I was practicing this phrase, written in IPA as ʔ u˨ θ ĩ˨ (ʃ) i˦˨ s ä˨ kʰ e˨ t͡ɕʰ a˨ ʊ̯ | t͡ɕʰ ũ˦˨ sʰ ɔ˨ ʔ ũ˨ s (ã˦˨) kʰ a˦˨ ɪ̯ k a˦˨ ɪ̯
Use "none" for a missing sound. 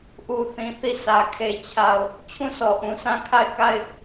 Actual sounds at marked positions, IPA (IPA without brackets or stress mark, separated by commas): θ, ã˦